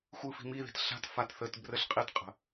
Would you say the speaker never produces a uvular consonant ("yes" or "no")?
no